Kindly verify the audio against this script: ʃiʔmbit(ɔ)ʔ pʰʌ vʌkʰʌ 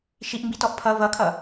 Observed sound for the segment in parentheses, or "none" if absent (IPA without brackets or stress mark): ɔ